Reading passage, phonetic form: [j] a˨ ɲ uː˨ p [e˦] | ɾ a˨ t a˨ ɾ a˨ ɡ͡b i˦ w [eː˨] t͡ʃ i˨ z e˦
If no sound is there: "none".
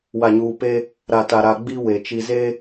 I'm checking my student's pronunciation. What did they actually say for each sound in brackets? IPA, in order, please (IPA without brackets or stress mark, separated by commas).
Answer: w, e˦, e˨